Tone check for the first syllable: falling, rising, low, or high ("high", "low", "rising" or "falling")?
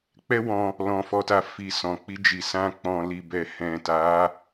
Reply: high